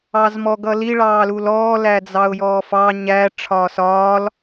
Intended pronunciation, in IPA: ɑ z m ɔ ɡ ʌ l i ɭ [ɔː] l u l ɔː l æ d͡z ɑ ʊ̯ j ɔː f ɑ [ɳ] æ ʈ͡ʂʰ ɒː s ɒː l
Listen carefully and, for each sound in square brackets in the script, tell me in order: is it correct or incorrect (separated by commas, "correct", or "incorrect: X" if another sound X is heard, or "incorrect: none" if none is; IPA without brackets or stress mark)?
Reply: incorrect: ɑː, incorrect: ɲ